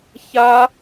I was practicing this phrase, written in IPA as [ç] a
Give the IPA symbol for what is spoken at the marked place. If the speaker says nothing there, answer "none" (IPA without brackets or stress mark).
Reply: ç